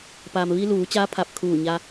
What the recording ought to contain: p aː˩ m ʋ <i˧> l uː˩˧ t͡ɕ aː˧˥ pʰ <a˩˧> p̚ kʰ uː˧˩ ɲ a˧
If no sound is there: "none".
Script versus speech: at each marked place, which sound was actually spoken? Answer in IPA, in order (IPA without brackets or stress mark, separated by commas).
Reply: i˧, a˧˩